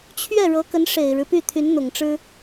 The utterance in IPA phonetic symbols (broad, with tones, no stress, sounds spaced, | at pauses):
t͡ɕʰ ɥ ɛ˥˩ ɻ ɤ˧˥ k ə˧˥ n ʂ e˨˩ ɪ̯ ɻ ɻ̩˦ p y˥˩ t̪ʰ y˧˥ n n̪ ʊ˨˩ ŋ ʈ͡ʂ ɻ̩˥